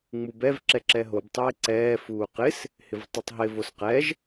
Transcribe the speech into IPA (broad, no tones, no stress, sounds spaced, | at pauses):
ŋ͡m u b ɛ v ǁ ɛ ǁ ɛ ɦ o b tˤ ɪː ǀ ɛː f uː q ɪ s | h ɪ v tˤ u tˤ ɦ ɪ v o s q ɛ ʒ